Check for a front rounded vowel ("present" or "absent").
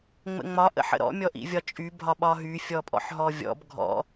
present